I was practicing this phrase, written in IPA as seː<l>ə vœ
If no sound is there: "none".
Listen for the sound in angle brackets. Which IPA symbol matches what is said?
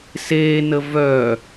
n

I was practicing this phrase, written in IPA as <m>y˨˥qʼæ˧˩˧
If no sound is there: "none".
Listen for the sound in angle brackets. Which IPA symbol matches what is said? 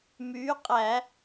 m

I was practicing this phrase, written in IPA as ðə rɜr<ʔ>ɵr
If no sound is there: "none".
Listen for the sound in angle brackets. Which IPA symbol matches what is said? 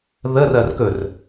k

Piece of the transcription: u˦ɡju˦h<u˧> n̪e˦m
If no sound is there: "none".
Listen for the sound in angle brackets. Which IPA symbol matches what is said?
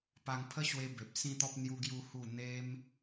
u˥˧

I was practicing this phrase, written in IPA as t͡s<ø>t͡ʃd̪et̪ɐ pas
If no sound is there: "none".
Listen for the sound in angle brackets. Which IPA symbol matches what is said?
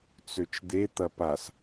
ø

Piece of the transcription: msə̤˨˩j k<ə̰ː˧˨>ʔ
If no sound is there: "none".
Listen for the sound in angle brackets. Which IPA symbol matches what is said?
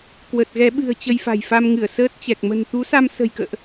ə̰ː˧˨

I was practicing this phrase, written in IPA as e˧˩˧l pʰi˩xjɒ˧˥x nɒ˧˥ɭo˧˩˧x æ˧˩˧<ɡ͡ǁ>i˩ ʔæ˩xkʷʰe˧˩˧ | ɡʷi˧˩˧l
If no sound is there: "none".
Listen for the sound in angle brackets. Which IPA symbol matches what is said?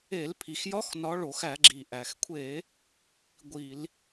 ɡ͡ǁ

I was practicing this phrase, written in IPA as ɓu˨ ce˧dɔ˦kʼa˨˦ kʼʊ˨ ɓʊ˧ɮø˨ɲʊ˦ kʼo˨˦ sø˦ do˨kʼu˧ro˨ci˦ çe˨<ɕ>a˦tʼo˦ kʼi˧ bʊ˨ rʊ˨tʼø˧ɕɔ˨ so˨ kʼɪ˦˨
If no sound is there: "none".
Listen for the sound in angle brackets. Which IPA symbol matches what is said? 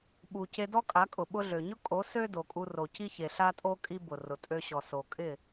ɬ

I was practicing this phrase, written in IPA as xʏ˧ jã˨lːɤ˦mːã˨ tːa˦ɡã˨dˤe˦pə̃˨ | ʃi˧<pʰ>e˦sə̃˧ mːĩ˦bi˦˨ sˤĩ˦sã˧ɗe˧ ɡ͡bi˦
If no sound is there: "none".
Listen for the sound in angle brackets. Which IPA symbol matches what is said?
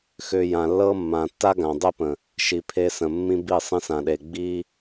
pʰ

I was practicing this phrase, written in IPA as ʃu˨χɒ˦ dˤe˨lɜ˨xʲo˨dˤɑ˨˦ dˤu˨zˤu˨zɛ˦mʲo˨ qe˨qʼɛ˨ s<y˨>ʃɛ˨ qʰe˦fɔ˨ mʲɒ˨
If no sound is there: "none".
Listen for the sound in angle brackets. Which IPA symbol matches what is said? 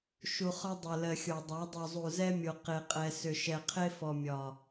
ʏ˨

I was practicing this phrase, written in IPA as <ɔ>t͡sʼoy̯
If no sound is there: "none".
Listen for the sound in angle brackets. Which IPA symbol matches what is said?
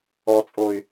ɔ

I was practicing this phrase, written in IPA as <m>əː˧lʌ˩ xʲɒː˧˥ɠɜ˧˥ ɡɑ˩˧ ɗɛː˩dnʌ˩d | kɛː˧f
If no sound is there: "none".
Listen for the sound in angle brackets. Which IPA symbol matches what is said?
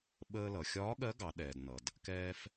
ɓ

